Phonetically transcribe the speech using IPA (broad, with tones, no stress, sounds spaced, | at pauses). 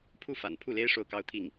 pʰ u˥˩ f a̰˨˩ n pʰ u˥˩ l e˥ ɪ̯ ʂ o˥˩ ʊ̯ k ɑ˥ ʊ̯ t̪ʰ i˥˩ ŋ